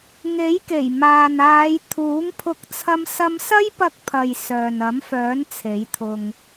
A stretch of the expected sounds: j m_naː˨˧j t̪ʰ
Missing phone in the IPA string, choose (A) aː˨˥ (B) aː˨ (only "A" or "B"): B